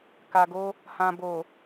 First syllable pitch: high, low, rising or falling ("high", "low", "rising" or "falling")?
low